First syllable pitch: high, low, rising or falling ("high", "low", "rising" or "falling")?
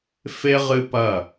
high